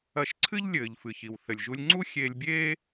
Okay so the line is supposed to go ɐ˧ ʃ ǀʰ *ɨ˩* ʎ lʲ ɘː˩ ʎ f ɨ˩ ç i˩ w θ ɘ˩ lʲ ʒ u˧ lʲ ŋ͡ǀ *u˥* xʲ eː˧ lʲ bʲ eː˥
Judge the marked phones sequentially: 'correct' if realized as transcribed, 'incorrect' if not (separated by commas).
incorrect, correct